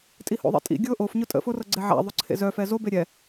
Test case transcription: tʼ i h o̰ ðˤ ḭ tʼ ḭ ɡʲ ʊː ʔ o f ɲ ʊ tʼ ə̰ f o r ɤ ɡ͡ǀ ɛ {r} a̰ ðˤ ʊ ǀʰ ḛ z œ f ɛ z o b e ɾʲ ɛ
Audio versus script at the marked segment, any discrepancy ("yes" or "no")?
yes